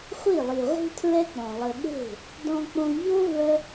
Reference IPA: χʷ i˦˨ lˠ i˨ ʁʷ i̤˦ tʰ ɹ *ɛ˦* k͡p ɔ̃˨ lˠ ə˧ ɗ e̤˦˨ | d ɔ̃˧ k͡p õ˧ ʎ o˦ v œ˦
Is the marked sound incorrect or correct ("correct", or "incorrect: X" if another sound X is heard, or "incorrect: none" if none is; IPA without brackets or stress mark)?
correct